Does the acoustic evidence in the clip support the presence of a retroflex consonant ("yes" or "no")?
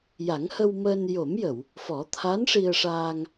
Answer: yes